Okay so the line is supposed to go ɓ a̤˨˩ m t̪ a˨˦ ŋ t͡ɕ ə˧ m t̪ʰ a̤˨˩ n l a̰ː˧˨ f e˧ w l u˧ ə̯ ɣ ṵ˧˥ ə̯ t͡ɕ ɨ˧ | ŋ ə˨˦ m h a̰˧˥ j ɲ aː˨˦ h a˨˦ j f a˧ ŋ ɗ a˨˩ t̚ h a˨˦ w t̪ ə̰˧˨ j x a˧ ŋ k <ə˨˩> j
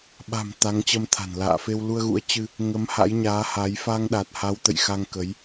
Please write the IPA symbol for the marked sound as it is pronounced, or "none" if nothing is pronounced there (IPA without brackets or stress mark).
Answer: ə˨˦